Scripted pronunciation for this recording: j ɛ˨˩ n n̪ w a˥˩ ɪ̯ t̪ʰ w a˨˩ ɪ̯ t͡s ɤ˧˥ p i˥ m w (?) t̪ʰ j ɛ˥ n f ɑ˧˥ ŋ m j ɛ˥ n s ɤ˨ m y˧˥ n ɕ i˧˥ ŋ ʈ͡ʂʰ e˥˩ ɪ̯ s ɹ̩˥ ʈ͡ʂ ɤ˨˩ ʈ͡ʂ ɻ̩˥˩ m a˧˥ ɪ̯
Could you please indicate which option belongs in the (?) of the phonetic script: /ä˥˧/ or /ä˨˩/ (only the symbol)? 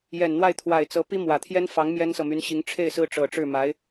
ä˨˩